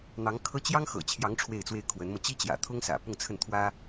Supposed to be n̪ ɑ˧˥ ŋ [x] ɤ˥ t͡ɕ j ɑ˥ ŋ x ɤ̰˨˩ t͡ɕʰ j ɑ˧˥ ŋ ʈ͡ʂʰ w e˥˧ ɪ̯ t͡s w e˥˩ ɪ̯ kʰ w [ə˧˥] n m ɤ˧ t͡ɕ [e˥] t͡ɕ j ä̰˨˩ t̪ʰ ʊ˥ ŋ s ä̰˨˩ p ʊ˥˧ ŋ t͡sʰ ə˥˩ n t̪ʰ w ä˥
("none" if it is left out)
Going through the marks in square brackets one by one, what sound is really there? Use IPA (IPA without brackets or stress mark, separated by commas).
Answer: kʰ, ə˧˥, i˥